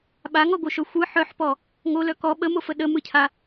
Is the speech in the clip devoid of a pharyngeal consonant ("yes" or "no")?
no